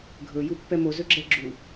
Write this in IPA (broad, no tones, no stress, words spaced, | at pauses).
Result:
ɡʱɵ jupːɛmo zɵɡ͡ǁɛɡ͡ǁu